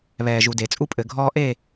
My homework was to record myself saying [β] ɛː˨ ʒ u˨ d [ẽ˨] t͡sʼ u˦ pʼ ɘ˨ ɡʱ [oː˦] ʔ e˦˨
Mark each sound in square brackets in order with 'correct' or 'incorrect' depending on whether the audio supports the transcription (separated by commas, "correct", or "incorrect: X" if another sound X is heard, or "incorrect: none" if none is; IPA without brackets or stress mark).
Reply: correct, incorrect: e˨, incorrect: ɔː˦